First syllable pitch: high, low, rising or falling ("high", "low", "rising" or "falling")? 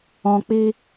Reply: low